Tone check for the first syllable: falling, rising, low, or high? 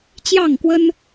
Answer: falling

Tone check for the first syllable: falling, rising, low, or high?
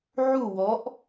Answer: falling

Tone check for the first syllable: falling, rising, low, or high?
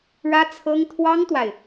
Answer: high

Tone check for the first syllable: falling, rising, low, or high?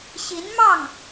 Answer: rising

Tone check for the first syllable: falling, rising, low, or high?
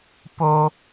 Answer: high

